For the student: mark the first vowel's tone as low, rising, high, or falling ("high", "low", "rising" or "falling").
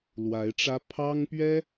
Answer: rising